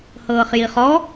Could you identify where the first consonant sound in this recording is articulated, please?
glottal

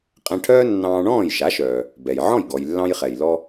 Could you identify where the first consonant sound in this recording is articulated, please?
uvular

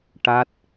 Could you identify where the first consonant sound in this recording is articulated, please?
retroflex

